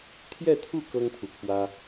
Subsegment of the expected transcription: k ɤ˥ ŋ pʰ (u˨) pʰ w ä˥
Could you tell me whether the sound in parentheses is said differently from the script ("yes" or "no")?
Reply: no